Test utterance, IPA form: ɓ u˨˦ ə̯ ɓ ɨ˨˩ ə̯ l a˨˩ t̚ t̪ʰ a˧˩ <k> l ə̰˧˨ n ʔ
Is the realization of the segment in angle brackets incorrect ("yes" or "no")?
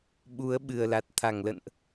yes